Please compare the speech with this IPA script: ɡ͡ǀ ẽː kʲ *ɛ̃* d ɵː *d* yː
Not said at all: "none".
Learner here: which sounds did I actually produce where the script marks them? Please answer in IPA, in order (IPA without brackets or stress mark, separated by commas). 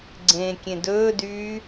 ẽ, d